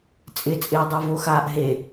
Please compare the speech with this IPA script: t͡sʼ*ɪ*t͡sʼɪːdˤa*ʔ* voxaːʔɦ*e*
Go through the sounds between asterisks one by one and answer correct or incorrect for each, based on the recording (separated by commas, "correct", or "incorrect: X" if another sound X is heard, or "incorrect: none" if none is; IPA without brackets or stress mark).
correct, incorrect: none, correct